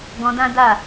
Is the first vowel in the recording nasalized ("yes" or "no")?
yes